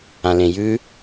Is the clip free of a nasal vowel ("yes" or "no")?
no